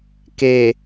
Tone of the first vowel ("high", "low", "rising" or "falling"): low